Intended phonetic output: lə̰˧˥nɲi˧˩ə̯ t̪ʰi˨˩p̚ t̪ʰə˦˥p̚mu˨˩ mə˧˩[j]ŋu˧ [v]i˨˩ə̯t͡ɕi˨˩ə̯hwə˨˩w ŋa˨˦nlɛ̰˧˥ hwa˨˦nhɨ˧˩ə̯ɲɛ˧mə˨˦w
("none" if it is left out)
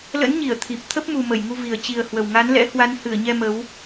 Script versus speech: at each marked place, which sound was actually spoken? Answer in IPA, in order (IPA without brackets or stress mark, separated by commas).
j, v